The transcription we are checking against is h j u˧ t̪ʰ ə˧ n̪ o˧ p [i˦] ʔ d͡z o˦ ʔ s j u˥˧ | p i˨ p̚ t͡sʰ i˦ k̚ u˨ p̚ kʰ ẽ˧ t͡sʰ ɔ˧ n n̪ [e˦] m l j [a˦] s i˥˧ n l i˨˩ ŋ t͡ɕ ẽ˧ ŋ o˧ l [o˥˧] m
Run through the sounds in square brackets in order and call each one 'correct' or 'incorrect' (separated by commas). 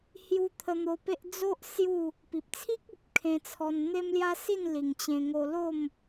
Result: incorrect, correct, correct, correct